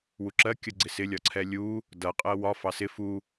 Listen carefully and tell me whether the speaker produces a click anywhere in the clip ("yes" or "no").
yes